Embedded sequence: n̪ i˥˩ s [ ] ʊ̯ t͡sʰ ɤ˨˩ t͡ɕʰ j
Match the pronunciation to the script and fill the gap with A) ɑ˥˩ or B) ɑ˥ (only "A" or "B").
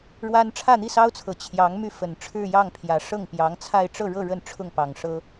B